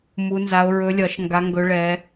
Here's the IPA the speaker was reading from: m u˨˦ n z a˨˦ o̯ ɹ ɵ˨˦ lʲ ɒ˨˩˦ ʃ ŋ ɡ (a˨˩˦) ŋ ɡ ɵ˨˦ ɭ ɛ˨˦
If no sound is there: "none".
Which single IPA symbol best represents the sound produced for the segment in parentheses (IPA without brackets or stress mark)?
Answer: a˨˦